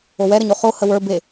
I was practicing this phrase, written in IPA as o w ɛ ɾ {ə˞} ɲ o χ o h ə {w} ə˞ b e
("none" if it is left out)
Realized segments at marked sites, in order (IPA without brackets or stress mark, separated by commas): ə, w